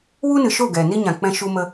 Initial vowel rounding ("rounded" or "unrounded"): rounded